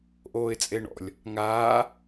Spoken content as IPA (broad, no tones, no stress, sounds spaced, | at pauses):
ʔ oː ɪ̯ t͡sʼ e ɳ ɔ̰ lʲ | ŋ aː